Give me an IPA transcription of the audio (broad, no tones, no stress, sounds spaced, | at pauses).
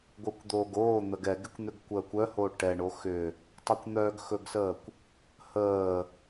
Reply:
ɡʷ œ kʷ d̪ oː ɡ oː n̪ ə ɡ ɛ ɡ e kʷ n̪ ʏ ɡ kʷ əː kʷ œ h o ʈ ɛ ɳ o x ʏ | tˤ ɵ kʷ n̪ œ ɡ x ɵ ɡ s əː kʷ | h əː